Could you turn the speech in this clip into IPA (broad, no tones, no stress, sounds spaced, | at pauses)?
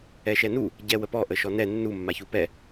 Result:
ɛ ʃ ɛ n u | ɟ ɛ w ə p ɔ ʔ ə ʃ ɔ n ɛ nː u mː a ç u p ɛ